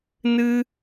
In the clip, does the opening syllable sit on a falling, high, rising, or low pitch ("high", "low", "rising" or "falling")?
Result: high